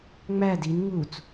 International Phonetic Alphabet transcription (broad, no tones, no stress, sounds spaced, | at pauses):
ŋ͡m æ d i n ŋ u t͡s